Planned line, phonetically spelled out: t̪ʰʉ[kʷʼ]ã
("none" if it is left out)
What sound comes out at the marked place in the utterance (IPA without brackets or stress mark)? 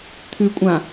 kʷʼ